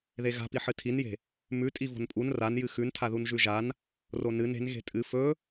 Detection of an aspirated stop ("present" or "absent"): present